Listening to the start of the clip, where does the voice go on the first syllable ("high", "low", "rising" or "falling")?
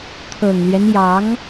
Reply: low